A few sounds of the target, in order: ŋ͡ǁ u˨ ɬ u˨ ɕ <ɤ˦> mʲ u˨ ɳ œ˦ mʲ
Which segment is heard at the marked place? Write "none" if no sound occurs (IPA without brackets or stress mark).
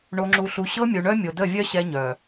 ɤ˦